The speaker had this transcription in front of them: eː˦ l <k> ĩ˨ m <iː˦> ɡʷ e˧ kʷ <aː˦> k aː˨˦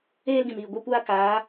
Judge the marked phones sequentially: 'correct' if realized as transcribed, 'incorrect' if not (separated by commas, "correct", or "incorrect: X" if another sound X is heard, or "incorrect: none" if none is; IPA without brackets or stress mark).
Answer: incorrect: ɡ, incorrect: iː˨, correct